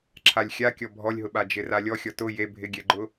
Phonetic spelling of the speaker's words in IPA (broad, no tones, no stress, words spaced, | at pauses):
ǁʰalʲxʲakʲɔ bʱɔlʲɦʊɓa d͡ʒɪralʲɔ xʲɔtʊ je bʱɪɡʲɛɡ͡ǃʊ